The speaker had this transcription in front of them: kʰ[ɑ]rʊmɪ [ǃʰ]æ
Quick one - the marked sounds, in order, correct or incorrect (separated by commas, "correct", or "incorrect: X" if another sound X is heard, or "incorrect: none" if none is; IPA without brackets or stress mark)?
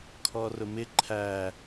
incorrect: ɔ, correct